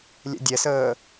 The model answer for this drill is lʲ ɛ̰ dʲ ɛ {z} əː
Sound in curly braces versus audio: incorrect: s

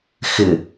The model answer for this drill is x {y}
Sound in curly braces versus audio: incorrect: ɪ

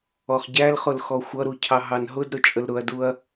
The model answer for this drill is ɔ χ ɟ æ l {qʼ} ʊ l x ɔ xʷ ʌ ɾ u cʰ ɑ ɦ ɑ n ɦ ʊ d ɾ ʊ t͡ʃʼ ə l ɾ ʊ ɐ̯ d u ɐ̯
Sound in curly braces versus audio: incorrect: χ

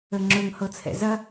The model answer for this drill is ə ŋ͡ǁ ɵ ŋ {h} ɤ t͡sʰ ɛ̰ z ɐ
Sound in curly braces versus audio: correct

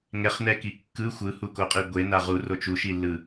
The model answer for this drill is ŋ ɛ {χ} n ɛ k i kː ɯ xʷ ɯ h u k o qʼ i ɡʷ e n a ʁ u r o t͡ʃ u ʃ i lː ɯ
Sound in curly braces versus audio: correct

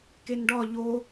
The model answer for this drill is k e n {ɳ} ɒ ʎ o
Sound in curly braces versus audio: incorrect: ɖ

